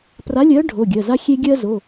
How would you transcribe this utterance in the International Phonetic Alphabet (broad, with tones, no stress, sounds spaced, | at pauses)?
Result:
p r a˨˥ lʲ ɜ˨˥ ɖʱ o˩˧˩ ɡʲ ɜ˩˧˩ z a˦ xʲ e˦ ɡʲ ɜ˦ z o˩˧˩